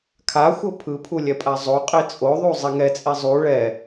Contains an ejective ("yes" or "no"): yes